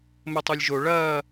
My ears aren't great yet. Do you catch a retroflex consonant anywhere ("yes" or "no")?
yes